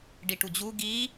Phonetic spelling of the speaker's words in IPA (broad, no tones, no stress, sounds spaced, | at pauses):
ɖ i ʈ u d͡ʑ u ɡ i